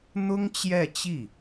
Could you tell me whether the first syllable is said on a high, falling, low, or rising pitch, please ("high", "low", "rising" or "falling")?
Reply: high